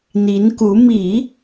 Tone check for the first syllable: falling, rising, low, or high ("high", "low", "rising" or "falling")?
rising